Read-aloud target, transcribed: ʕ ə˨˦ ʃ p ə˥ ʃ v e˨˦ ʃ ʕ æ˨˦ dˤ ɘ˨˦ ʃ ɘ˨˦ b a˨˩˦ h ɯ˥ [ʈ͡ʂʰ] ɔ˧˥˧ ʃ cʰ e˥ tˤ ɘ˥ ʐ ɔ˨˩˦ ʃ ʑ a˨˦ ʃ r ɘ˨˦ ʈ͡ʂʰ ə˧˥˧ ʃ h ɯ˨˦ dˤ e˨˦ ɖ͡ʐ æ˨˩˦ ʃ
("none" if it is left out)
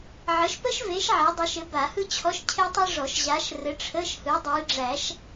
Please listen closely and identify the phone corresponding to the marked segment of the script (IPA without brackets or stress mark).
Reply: t͡ɕʰ